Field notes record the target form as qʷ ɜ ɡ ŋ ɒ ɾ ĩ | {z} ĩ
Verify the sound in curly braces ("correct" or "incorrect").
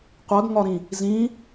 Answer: correct